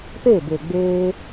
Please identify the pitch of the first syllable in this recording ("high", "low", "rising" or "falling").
falling